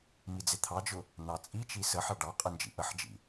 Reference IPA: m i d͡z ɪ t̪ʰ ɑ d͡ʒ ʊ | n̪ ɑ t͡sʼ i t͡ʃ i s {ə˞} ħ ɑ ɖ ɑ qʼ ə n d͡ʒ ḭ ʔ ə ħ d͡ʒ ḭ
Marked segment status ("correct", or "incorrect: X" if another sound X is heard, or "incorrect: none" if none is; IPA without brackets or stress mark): incorrect: ə